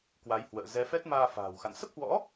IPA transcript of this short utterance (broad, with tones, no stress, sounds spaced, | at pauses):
k w a˨˦ j h w ə̰ː˧˨ z ɛ˨˦ f ɛ˦˥ t̚ m aː˧ f a̤ː˨˩ w x a̰˧˨ n s ə˦˥ p̚ h w ɔ̰˧˥